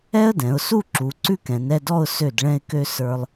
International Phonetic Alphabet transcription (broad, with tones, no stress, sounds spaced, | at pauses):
ɛ˥ ə̯ d ɛ̃˩˧ ʊ̯ s u˥˧ ǁ u˩˧ ǀ ʉ˥ k ɛ̃˩˧ n ɛ˥˧ d ɔ˥˧ ʊ̯ s ø˧˩ d ɭ ɛ̃˧ ɪ̯ k ø˧ s ə˞˧ lˠ